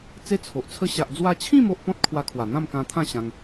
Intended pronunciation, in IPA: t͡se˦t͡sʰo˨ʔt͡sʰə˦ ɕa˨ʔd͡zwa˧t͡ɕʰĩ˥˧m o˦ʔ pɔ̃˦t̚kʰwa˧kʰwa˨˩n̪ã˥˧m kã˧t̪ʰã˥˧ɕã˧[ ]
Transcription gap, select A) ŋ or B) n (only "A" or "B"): A